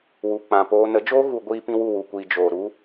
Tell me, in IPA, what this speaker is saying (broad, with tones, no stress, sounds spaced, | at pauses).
w u˨ k͡p ã˨ p oː˧ n ə˨˦ d͡ʒ oː˦ ɣ u˧ ɡʷ iː˧ p ĩ˧ w u˦˨ w u˨ kʷ iː˨ d͡ʒ oː˨ ɾ u˦